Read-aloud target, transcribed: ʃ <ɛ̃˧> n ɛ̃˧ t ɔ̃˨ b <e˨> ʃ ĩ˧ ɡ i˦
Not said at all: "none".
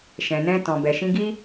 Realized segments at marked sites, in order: ɛ̃˨, ɛ˨

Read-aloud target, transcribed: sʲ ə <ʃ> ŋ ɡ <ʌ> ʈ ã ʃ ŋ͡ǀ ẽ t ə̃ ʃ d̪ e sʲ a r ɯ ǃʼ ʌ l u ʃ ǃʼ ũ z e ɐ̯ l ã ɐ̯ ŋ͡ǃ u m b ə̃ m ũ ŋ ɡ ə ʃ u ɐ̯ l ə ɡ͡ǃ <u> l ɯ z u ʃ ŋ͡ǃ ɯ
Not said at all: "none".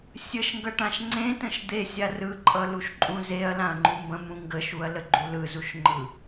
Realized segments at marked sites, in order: ʃ, ʌ, u

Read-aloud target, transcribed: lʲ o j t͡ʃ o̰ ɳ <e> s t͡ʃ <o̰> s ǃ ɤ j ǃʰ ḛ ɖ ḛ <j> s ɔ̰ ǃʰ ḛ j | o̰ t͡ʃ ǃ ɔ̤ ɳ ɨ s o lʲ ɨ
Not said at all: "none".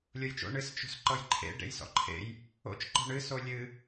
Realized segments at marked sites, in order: ɨ, o̤, j

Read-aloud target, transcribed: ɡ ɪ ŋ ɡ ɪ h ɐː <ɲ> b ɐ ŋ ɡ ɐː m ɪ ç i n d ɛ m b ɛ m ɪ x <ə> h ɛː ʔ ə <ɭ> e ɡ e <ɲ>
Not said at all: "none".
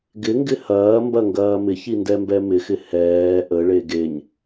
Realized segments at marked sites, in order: m, ɪ, ɭ, ɲ

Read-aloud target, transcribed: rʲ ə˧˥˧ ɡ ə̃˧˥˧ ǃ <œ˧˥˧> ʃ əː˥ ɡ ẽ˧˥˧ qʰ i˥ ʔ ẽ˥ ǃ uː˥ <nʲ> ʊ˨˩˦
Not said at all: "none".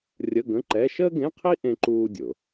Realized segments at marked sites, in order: ɛ˧˥˧, dʲ

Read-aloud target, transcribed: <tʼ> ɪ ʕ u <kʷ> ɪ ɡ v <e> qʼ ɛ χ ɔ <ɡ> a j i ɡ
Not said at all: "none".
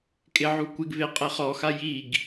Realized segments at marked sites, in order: kʼ, kʷ, e, x

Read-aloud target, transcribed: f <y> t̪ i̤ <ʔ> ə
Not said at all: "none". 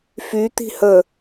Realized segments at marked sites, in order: y, h

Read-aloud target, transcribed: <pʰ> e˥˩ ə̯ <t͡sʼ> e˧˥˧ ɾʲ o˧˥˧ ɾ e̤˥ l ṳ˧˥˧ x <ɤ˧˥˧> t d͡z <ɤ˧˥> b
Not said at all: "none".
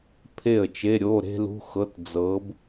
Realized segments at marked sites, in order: pʰ, t͡ʃ, ɤ˧˥˧, ɤ˧˥

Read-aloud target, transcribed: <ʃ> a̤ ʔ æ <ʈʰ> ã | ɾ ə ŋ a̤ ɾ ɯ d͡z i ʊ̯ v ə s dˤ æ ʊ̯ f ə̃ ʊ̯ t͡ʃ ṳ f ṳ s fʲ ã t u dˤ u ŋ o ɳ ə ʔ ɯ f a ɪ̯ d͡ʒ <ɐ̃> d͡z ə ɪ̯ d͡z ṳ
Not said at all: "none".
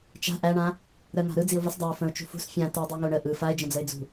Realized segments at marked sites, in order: t͡ʃ, ɳ, ə̃

